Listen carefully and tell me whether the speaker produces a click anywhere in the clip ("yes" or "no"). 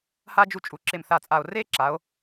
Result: yes